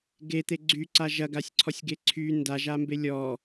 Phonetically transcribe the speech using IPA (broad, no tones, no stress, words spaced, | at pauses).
ɡet̪e ɡ͡ǀyǀa ʒɐɡasʲǀʰɔsʲɡe ǀʰy ndaʒambe lʲɔ